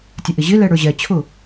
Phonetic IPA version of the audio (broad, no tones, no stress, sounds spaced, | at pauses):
tʲ ə ʔ ɪ ʑ ɪ l ɛ ɽ ə˞ ʑ ɛ t͡ɕʰ ʊ